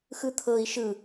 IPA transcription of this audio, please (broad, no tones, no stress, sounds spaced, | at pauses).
x ɯ t̪ʰ ɤ i̯ ʃ ɯ